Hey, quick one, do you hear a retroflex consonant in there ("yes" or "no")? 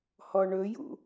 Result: yes